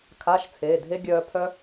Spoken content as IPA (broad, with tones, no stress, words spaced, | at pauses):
kʰa˧˥˧ʃt͡sʰeː˩˧˩dʱe˦˥ ɡʲœː˧pʰœ˦˥